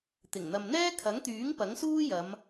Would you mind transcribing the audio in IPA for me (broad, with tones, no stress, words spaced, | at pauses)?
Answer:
t̪ɪ˨˩ŋn̪ɐ˨mn̪ɛː˥ kʰɐ˨˥ŋt̪yː˨˥ŋ pɐ˨˥ŋsuː˥jɐ˨˧m